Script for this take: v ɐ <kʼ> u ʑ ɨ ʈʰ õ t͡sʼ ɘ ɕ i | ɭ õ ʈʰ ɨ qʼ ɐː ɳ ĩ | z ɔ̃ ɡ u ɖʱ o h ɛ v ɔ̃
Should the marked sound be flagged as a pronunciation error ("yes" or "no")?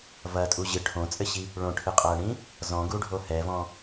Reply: yes